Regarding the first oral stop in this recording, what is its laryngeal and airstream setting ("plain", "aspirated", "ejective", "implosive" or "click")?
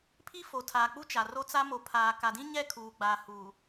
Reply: aspirated